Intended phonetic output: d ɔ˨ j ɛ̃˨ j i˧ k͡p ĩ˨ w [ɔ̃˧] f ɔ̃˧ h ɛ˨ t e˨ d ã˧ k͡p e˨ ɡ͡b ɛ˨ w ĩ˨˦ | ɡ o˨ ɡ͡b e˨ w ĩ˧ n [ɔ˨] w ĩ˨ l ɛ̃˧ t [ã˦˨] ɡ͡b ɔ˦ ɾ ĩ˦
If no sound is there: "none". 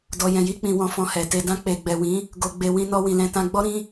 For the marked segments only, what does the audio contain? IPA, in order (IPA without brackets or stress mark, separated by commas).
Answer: ɔ̃˧, ɔ˧, ã˧